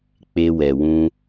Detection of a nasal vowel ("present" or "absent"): present